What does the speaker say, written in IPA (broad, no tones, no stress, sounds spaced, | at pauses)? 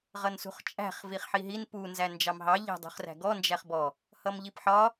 ʁ ʌ n s ṳ χ t͡ʃʼ æ̤ χ v i χ ħ i ɦ i n p u n z æ n d͡ʒ ɑ m ɦ ɑ ʎ æ̤ dˤ ṳ χ r æ̤ ɡ ɔ n d͡ʒ æ χ b ɔ | h ʌ m ʎ i p ħ ɒ